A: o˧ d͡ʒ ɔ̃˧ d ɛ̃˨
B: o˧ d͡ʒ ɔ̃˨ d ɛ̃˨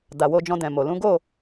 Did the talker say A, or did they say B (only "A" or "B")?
A